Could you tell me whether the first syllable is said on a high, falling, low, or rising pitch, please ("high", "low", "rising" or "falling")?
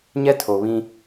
high